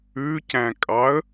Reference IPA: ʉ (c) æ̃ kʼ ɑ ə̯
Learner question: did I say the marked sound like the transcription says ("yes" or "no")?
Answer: yes